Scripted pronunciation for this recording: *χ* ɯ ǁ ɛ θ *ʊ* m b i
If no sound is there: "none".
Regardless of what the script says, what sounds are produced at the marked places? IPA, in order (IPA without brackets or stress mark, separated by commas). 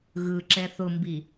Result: ɣ, ʊ